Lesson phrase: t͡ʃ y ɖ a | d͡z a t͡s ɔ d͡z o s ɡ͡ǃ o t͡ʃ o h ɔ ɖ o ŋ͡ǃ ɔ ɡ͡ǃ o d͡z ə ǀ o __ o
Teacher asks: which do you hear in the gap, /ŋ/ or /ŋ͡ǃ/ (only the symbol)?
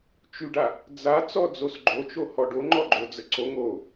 ŋ